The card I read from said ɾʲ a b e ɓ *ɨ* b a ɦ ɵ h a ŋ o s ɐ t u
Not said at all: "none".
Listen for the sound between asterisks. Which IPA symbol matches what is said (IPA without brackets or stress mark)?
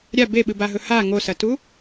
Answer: ɨ